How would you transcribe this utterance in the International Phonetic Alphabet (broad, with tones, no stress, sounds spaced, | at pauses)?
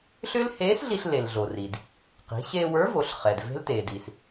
ɬ ʏː˥ l h eː˧˥ s ɮ i˧ ɬ l e˩ l ɮ o˩ r i˩ d | q i̤˩˧ ɕ eː˧ w ə˞˧˥ v o˩˧ ɬ χ ɛ˩ d v e̤˥ l t eː˩ d i˩ s